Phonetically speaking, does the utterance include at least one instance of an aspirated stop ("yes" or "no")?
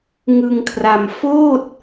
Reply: yes